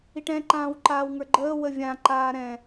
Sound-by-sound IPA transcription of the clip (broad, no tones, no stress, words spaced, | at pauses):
iʈɛ̃ ǃãːwǃaːwŋə˞ɡ͡ǃəː wəvʲã ǃaːɾɛ̃